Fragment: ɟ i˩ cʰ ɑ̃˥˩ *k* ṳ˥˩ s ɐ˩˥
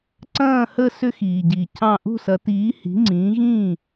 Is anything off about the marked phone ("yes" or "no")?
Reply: yes